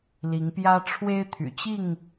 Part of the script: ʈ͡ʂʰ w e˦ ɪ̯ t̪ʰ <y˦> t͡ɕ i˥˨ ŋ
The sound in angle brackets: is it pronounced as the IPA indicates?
no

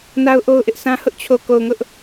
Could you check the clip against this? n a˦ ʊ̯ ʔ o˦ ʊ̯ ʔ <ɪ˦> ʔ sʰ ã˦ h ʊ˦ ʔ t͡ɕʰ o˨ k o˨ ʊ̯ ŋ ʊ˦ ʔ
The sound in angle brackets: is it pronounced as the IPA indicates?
yes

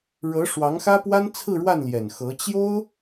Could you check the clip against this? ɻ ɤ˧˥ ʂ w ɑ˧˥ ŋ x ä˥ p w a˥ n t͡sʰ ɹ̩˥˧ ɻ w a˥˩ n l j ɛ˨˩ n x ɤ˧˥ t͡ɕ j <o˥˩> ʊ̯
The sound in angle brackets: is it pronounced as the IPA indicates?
no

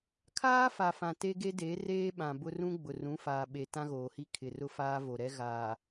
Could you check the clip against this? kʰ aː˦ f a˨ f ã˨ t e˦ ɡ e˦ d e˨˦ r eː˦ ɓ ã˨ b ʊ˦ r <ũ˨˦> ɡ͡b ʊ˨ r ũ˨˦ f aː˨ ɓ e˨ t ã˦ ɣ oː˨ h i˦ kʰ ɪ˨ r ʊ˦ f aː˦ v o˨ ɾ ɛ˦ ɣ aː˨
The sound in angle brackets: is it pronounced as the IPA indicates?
no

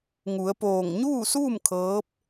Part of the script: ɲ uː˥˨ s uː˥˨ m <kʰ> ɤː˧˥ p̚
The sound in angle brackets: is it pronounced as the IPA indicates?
yes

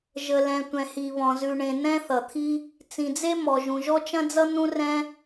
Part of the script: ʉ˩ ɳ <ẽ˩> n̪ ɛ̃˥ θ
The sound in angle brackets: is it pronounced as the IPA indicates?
yes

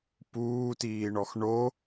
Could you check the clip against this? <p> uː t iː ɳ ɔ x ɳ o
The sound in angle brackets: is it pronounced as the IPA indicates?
yes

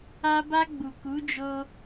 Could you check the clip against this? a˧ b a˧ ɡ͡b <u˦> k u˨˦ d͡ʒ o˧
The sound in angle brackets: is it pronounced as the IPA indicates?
no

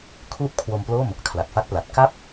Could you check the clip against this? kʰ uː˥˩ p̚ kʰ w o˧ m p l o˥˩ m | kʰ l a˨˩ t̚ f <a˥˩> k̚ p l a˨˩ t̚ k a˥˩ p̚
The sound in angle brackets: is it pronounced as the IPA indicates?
no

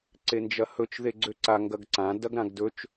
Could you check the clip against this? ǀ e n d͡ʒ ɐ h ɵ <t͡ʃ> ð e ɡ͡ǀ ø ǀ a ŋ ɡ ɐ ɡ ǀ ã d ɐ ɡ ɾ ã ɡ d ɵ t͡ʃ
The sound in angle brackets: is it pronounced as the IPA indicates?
yes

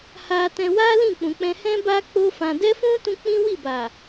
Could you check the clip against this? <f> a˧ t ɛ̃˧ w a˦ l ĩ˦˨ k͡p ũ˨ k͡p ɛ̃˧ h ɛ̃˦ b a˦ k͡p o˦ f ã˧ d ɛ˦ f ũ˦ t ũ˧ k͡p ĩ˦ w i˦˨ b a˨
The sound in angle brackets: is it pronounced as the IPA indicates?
no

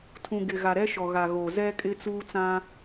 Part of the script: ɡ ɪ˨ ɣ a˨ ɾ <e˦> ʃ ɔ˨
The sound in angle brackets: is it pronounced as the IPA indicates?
no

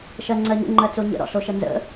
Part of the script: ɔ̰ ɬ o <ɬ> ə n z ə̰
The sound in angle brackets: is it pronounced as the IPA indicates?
no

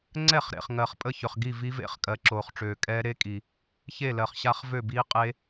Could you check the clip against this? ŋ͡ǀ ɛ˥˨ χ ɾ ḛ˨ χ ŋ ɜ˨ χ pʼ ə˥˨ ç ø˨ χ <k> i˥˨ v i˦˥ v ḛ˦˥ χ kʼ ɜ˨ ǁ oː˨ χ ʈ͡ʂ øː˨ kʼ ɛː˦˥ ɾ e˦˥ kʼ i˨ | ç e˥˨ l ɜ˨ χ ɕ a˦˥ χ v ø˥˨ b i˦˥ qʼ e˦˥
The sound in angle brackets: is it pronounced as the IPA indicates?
no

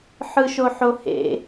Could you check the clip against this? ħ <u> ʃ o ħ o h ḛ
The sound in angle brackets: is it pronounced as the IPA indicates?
no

